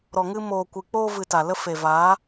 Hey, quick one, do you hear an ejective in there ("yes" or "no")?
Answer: no